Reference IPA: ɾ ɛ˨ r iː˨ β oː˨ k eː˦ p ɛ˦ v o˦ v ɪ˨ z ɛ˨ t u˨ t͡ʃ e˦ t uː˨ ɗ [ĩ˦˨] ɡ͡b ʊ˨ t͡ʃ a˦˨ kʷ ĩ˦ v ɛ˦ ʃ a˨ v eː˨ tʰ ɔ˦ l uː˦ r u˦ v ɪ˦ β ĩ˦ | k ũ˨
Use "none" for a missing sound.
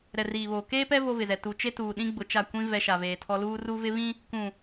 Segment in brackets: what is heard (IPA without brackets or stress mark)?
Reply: ĩ˦